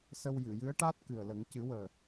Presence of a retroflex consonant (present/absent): present